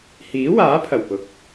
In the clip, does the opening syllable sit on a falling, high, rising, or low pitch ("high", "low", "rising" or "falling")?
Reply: rising